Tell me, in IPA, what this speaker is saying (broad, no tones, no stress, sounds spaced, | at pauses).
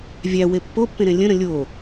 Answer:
vʲ æ w e pː o pː ẽ ɾ ẽ lʲ ə̃ ɾ ə̃ lʲ o